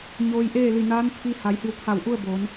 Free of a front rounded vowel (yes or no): yes